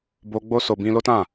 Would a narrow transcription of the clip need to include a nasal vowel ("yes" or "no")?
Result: yes